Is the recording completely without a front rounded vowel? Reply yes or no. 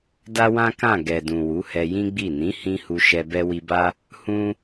yes